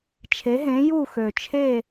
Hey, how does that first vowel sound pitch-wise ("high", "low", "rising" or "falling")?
rising